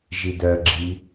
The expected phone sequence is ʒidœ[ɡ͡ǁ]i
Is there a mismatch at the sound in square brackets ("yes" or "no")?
no